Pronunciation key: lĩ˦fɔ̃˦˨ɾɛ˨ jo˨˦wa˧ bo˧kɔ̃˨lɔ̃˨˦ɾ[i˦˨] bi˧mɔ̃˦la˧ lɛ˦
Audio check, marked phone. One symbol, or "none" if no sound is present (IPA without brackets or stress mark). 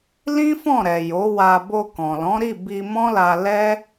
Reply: i˦˨